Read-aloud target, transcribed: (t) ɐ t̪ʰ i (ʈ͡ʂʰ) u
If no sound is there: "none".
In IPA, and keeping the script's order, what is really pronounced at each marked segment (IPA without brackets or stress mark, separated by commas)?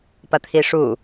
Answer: p, ʂ